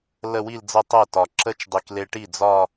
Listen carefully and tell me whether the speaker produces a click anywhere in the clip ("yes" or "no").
yes